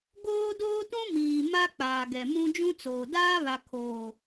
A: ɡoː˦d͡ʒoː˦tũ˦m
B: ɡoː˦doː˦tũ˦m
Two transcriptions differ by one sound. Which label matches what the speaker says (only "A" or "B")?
B